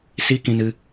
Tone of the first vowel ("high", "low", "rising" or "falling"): high